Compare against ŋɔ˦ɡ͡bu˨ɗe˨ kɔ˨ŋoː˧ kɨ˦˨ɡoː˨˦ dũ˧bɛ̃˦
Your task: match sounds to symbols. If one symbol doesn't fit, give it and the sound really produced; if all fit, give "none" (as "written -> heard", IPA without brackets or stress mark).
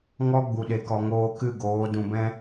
none